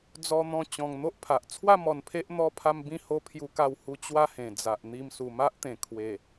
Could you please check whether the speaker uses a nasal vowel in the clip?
yes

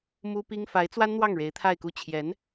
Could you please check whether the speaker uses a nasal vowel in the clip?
no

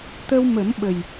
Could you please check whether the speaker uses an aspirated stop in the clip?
no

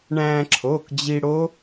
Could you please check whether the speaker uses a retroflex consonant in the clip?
yes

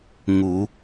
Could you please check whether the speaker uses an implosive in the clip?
no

